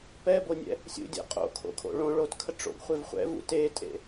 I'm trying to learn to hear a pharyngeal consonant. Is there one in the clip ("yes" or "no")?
no